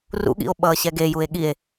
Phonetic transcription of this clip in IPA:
rṵɠḭo̯ɓʌːɕɛ ɡejue̯ ɠie̯

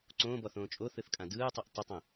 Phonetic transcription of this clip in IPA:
ǀõːbɔθõː t͡ʃʼoθɯθkʼã dɯːtˤuʔ tˤətˤõ

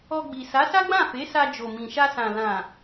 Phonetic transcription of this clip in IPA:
ɔ˧ɡ͡bi˨ sa˨˦sa˦ɡ͡bã˦˨ fe˨˦sa˧ d͡ʒo˨mĩ˨ʃa˧sã˨ lã˨

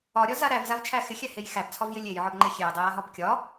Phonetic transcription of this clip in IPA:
ɒɾʲɒza ɾævzavt͡ʃʰæ xɪxʲæhej xæbt͡sʰɒvjɪ lʲejʕɒbŋ͡ǃe xʲejdˤɪjaɦɒb kʲɒ

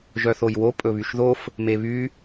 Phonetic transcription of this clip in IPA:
ʒœθojwo pʼɵβyʃðof | meβy

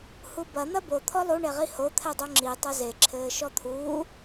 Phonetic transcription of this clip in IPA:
hubɐ n̪ɐbo t̪ʰɔlˠu ɳeʁiho t̪ʰɛdˤoŋ͡ǁi tˤɐze ǁʰɘːʃɔt̪ʰuː

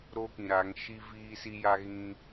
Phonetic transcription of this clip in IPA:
ɾo˦kĩ˨ɾa˨˦ŋ ʃi˦ viː˦si˦ja˦ ɣĩ˦

